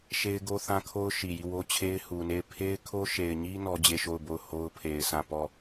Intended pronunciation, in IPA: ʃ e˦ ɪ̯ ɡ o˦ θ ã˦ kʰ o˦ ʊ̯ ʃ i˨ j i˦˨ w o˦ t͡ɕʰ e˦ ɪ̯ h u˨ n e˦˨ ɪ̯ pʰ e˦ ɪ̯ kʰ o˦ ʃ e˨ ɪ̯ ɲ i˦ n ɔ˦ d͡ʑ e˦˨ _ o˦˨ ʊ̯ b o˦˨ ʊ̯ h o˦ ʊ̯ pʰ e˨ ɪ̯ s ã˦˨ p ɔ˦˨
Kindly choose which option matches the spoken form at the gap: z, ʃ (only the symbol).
ʃ